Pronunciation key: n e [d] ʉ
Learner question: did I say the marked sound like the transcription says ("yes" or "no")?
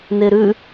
no